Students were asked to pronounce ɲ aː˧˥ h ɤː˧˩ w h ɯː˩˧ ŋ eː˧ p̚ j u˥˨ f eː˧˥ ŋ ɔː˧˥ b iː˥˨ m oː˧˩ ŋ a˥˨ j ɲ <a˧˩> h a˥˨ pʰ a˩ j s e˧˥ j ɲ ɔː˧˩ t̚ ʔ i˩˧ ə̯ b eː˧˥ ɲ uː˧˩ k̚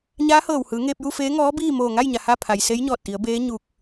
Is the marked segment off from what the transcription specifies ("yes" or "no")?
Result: yes